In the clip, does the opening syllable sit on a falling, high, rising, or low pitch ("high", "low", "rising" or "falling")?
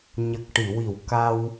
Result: low